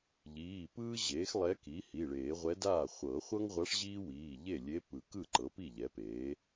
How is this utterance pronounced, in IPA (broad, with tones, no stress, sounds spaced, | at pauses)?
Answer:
ʎ iː˩˧˩ p ɯː˥ ʑ eː˩˥ x lˠ ɛ˧˥ k i˩˥ h i˩˧˩ ɭ eː˨˩˦ ʁʷ ɛ˧˥ d aː˥˩ χʷ ɤː˨˩˦ χʷ ɤ˥ ŋ ʁʷ a˧˥ ʂ ʑ iː˥ w iː˩˧˩ ʎ e˥˩ lʲ e˧˥ p ɯ˨˩˦ k ɯ˥˩ ǃ ɤ˩˥ p i˥˩ ʎ ɛ˩˥ p e˩˥